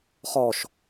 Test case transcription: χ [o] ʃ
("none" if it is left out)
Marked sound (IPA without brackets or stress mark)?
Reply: ɔ